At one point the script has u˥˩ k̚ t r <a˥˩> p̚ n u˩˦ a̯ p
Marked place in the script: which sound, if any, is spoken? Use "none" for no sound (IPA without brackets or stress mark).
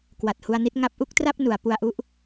a˥˩